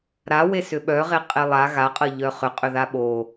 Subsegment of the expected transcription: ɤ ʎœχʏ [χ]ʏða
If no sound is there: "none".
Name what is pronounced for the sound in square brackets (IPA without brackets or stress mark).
qʼ